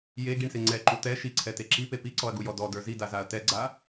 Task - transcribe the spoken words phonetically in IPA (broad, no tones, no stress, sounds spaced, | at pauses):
j e ɡ i ɳ s e ŋ͡ǀ ɛ ǃ u t̪ ɛ ʃ i ǀʰ ɛ t e ǁ i p e p i ǀ ɔ ɐ̯ ɡ u j ɔ d ɔ d ə˞ z i d a z a ɐ̯ t ɛ ɡ͡ǀ a